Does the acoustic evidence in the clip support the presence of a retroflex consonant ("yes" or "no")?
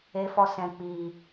no